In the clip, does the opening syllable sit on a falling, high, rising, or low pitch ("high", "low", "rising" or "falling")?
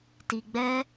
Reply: low